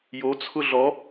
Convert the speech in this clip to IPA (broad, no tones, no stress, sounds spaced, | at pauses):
j o t͡sʰ ʊ ɮ ɔ